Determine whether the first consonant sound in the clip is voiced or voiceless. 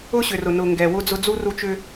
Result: voiceless